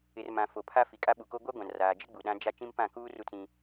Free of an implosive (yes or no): no